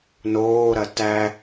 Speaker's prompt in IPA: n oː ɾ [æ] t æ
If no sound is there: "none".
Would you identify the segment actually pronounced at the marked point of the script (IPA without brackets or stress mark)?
ɐ